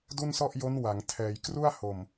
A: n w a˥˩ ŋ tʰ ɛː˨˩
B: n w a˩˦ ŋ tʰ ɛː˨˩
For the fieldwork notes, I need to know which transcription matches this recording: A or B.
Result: B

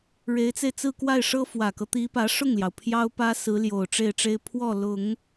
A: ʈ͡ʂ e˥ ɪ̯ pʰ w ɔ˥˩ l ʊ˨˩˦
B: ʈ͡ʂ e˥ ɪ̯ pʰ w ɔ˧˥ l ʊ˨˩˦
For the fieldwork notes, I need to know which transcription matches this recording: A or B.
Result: A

